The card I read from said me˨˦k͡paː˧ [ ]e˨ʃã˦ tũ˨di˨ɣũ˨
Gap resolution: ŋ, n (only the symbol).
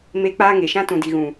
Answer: ŋ